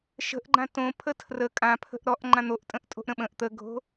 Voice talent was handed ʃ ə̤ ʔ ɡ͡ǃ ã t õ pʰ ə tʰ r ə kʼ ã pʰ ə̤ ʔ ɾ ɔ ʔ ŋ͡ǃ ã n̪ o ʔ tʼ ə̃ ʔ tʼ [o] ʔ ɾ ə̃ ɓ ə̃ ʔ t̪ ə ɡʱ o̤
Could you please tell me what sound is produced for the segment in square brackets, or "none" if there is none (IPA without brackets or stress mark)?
o̤